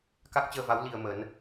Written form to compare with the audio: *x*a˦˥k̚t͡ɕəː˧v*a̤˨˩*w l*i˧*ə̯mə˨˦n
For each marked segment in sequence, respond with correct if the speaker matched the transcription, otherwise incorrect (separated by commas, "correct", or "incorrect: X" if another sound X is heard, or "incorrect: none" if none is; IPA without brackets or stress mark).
incorrect: k, incorrect: a˨˦, correct